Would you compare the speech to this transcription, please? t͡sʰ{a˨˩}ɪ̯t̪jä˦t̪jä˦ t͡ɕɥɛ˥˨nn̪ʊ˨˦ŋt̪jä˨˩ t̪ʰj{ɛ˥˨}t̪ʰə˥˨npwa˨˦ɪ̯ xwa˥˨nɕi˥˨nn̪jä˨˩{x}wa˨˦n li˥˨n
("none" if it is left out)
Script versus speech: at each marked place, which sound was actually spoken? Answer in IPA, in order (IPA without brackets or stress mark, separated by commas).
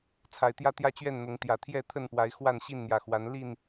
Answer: a˨˩, ɛ˥˨, x